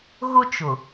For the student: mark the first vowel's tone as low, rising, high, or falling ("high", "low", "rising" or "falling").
high